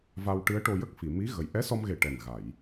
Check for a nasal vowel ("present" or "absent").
absent